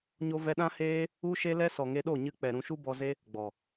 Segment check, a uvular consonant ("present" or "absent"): absent